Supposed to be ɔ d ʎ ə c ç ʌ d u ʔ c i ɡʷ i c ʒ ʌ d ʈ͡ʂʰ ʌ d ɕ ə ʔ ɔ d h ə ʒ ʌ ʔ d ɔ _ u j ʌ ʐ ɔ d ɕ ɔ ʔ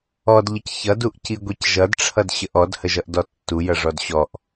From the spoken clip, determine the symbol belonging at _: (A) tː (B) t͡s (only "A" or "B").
A